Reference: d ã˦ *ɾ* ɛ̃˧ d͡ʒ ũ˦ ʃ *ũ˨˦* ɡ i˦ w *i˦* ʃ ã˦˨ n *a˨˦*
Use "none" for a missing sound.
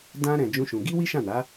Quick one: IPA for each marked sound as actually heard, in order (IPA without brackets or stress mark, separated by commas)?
ɾ, ũ˧, i˦, a˨˦